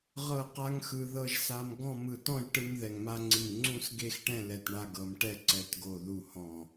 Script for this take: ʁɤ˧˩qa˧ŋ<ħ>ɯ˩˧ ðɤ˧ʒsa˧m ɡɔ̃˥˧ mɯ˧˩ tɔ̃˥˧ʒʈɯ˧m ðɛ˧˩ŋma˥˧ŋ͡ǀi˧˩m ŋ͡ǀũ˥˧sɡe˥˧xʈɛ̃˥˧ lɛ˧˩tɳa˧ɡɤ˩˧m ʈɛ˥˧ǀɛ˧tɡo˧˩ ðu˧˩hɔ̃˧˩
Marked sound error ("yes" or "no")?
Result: yes